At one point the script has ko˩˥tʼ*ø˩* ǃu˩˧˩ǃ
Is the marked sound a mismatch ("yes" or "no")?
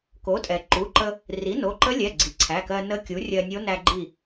yes